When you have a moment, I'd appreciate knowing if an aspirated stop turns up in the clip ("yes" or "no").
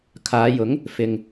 yes